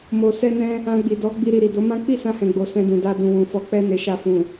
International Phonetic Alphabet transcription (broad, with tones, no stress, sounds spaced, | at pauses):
m o˨ s ɛ˧ n ɛ̃˧ | ã˧ ɡ͡b i˨ d ɔ˨˦ ɡ͡b i˧ ɾ i˨ ɾ i˨ d o˨˦ m ã˦ k͡p i˦˨ s ã˧ h ɛ̃˨ ɡ͡b o˨ s ɛ̃˧ d ũ˨ d a˧ d ũ˨ w ũ˨ f ɔ˨˦ k͡p ɛ˧ n e˨ ʃ a˧ f ũ˨